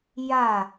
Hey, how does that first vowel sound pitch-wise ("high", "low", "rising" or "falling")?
falling